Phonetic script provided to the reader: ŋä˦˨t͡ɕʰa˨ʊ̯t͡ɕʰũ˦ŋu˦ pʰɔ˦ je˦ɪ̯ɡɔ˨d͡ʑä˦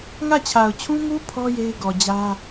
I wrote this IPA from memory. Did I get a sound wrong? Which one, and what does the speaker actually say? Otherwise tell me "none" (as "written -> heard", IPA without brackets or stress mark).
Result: none